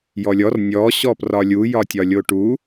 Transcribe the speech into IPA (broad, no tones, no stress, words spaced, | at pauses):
jɔlʲɔr nʲɔ ɕɔprɒlʲu jɒtʲɒlʲoʈu